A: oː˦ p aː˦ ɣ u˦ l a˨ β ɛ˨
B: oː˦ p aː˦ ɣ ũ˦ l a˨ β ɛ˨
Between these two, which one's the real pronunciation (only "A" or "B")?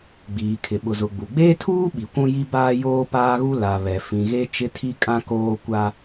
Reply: A